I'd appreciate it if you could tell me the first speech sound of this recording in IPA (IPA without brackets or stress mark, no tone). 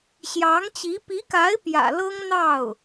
ɕ